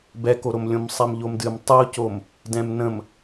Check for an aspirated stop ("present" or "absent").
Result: absent